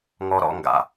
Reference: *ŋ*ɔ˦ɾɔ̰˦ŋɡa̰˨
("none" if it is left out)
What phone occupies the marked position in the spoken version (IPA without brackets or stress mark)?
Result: ŋ